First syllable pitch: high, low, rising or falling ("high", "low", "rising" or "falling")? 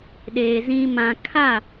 low